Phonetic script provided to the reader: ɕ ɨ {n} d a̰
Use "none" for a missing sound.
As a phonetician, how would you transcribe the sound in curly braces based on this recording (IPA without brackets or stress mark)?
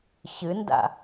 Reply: n